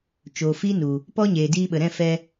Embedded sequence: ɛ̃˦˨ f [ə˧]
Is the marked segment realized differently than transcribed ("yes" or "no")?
yes